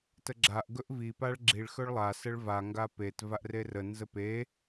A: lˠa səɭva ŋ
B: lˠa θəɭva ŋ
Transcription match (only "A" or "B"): A